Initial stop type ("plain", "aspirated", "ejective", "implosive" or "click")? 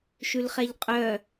ejective